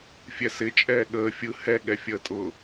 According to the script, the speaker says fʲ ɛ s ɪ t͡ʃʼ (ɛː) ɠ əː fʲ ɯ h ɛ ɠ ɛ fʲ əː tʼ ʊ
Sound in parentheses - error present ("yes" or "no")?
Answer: no